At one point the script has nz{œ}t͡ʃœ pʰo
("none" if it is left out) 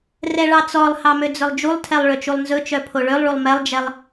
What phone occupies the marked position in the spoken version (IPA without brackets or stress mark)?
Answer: ɵ